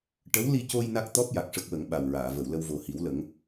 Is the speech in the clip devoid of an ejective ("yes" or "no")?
yes